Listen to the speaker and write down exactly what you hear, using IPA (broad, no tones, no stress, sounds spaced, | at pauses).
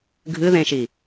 ɡʱ ɨ ð ẽ ʃ i